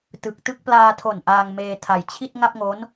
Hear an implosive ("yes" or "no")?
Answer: no